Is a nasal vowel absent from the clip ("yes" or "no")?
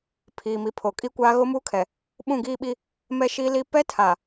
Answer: no